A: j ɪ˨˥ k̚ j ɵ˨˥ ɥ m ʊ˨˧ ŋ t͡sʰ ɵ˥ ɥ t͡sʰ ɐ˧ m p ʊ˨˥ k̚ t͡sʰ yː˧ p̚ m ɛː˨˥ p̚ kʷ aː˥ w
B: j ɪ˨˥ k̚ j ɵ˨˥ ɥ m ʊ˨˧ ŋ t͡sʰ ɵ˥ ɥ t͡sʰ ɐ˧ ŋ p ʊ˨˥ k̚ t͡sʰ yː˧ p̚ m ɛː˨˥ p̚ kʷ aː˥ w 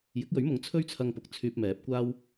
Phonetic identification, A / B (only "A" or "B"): B